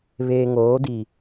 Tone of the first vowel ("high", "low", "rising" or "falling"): low